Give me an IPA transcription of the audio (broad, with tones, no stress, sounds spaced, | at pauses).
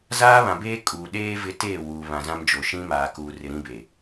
z aː˦ β ã˨ b eː˦ kʼ uː˨ ɗ eː˦ v ɪ˦ t eː˦˨ w uː˨ β ã˨ z ã˦ m d͡ʒ o˨ ʃ ĩ˦ m aː˨ k uː˨ r ɪ˨ ɾ ĩ˦ b e˨